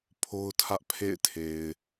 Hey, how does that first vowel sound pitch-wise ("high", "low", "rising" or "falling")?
high